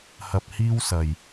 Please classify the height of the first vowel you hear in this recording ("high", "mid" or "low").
low